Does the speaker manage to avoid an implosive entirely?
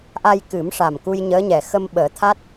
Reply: no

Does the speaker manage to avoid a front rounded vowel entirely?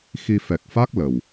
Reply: yes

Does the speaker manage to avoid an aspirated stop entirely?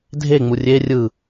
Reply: yes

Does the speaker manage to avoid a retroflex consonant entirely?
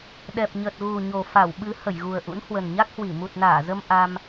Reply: yes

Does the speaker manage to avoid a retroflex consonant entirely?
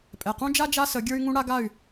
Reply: no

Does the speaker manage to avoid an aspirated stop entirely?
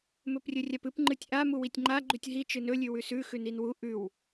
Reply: yes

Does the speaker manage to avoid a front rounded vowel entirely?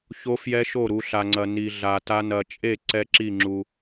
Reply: yes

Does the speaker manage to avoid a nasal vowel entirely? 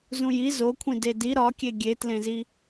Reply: no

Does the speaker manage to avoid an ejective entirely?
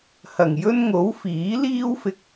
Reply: yes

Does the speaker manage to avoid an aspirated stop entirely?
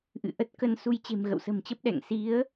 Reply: yes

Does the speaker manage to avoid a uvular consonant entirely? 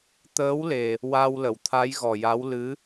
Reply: yes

